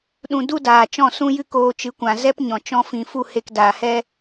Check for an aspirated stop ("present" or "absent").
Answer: absent